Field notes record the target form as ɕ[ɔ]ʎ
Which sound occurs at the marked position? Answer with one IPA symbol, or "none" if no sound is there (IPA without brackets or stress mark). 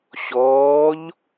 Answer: ɔː